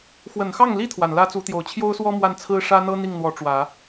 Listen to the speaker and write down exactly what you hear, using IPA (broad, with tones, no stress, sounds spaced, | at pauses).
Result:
x w ə˨˩ n x ɑ˥˩ ŋ l i˥ t̪ʰ w a˨˩ n l ä˥ t͡s u˧˥ t̪ j o˨˩ ʊ̯ t͡ɕʰ j o˥ ʊ̯ s w ɔ˥ m w a˥˩ n t͡sʰ ɹ̩˥ ʂ ä˥ n̪ ɤ˥ n̪ i˥˩ ŋ n̪ w ɔ˧˥ ʈ͡ʂ w ä˨˩˦